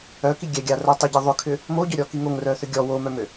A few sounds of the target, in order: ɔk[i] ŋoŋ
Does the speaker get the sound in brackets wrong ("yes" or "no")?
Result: no